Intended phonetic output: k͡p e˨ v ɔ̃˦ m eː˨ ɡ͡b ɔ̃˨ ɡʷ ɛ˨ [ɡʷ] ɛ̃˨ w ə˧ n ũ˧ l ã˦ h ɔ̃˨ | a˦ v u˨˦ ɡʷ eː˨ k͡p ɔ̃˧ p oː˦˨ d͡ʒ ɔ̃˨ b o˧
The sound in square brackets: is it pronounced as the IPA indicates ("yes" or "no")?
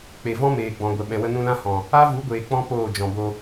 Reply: no